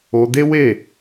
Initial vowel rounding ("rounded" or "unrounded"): rounded